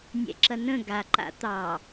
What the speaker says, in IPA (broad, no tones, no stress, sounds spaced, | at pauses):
nʲ ɛ̰ ǁ ɐ n ə̃ ɡ a ǃ a̰ t̪ ɑ